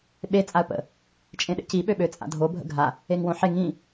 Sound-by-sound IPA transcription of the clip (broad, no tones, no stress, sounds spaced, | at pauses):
ɓ e t͡sʼ a ə̯ p ə̰ | t͡ʃʼ ẽ ɗ ḛ c i ɓ ø ɓ ø t͡sʼ a̰ dʱ o bʱ ə̰ ɡʱ a | e ŋ w õ ħ e ŋ ĩ